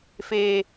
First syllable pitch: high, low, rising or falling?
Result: high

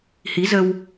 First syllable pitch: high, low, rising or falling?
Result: rising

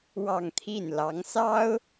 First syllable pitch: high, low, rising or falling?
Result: falling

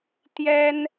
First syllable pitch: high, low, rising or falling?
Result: high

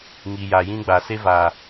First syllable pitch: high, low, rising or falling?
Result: low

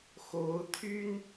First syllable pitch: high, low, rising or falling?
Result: rising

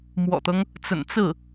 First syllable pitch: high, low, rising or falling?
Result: low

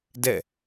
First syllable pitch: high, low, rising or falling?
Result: falling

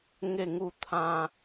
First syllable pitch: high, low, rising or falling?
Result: falling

